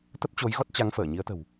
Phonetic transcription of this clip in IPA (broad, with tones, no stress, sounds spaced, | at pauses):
t̪ ə˦˥ p̚ t͡ɕ o˨˦ j ɣ ɔ˦˥ t̚ t͡ɕ a˨˦ ŋ f əː˧˩ ɲ i˨˦ ə̯ t̪ ə̤˨˩ w